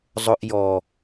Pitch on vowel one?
high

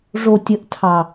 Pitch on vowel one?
high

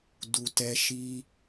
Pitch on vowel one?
low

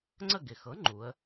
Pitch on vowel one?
falling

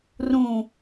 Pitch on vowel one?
low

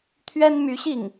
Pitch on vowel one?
high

